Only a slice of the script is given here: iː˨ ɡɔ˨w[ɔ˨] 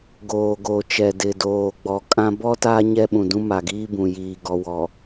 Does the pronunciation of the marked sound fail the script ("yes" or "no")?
no